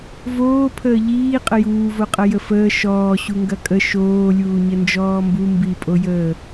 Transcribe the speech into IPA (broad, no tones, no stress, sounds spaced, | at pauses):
v oː pʰ əː ʎ iː qʼ ə j uː v o qʼ ɐ j ə f əː ʃ ɔː ɕ u ŋ ɡ ɐ kʼ ə ʃ oː lʲ uː ɲ ə n d͡ʒ ɔː m b u m b i pʼ o j əː